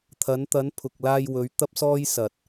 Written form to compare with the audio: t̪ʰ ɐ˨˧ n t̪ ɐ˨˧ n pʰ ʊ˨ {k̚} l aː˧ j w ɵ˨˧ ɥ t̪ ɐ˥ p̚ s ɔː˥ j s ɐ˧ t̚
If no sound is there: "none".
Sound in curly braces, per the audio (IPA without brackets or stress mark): k̚